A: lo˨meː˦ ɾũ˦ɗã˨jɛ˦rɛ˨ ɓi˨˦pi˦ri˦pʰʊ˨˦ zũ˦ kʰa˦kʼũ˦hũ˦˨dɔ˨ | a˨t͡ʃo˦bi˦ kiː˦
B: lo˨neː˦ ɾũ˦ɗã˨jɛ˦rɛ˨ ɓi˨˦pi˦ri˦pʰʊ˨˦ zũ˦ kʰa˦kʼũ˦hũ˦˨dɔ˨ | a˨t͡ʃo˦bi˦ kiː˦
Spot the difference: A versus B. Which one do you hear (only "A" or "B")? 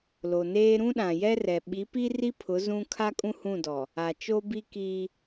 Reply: B